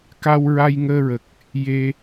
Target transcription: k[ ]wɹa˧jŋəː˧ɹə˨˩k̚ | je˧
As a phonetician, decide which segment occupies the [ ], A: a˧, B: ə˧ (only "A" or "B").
A